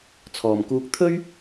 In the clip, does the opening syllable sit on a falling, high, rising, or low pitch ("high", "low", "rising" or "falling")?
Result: low